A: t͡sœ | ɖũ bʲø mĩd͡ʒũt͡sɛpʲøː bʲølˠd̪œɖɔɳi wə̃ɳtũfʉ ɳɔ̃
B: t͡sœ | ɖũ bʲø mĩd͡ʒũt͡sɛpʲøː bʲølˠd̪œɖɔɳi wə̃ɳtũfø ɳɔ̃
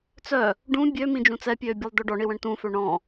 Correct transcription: B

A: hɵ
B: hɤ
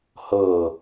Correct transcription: B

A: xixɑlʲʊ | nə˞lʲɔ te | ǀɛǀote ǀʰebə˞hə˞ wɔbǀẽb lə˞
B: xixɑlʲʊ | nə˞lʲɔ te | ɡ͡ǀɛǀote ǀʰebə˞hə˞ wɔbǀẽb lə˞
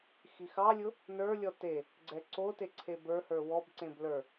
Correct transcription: B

